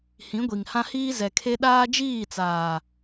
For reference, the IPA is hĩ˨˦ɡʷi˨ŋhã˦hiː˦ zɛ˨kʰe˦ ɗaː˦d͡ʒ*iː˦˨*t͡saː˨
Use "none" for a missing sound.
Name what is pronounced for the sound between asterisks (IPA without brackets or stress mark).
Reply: iː˦˨